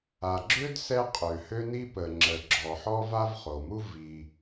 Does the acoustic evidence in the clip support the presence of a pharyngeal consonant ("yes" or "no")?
yes